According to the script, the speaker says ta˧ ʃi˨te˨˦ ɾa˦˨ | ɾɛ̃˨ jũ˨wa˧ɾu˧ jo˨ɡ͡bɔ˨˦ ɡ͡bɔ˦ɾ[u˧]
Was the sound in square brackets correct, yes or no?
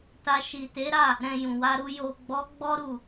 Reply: no